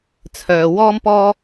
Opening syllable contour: low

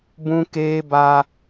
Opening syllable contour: high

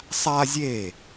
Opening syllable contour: high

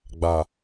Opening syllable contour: low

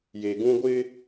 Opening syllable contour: low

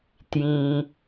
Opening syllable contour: low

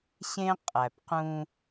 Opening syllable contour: high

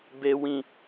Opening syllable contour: low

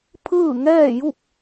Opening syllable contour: falling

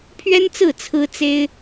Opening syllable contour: high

